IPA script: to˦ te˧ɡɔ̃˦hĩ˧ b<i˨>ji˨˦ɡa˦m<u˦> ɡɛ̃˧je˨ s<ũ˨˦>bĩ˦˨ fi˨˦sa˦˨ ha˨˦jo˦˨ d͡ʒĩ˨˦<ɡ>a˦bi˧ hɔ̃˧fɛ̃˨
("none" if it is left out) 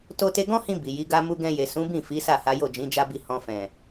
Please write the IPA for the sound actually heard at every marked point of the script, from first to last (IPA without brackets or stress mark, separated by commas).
i˨, u˦, ũ˨˦, d͡ʒ